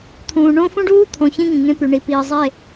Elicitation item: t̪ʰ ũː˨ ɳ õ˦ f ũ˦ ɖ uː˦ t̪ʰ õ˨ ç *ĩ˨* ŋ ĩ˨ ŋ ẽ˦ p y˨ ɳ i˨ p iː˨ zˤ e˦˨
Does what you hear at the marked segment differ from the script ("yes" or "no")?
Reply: yes